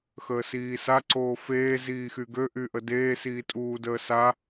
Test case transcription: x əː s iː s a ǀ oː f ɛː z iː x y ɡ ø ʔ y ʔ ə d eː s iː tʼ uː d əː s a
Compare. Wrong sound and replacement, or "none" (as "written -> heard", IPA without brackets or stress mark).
ɛː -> eː